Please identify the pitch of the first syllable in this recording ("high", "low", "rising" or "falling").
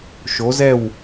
rising